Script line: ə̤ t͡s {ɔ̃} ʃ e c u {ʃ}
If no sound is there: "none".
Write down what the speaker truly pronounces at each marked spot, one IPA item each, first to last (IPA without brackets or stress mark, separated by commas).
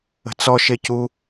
ɔ, none